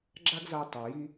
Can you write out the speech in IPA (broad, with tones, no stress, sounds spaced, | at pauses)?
ɡ͡ǁ a˥ ɡ z a˧ tˤ ɤ˩ j i˧